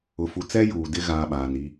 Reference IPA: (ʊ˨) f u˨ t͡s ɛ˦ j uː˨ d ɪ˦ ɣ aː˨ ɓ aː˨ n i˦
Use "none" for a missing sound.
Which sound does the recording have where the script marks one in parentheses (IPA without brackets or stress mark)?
ʊ˨